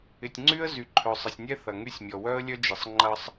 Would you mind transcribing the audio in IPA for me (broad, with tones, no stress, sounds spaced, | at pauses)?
ɪ˨ tʲ ŋ͡ǀ y˦ ə̯ z y˨ ǃʰ œ˨ sˤ ə˨ sʲ nʲ ɛ˦ θ ɐ˨ ŋ y˦ sʲ mʲ ɔ˨ w œ˦ ə̯ lʲ œ˦ d͡ʒ ɪ˨ sˤ ŋ͡ǃ ɐ˦ sˤ